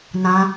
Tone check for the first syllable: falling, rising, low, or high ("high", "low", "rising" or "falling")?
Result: high